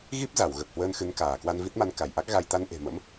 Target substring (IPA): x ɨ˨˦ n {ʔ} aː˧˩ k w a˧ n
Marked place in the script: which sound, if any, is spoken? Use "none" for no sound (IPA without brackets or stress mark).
k